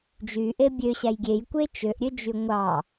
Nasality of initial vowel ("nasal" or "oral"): oral